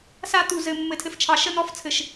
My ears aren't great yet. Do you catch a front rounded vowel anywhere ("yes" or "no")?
no